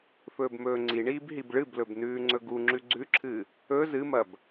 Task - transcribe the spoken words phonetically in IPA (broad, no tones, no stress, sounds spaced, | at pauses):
f ɵː b m ɵː ŋ͡ǀ i ɳ iː b ɦ i b ɭ ɨ b l ɵ b n ʉː ŋ͡ǀ ɵ ɡ u ŋ͡ǁ ʉ ɡ͡ǀ ʉ ǁʰ ɨ | ɵ z ɨ m ɐ b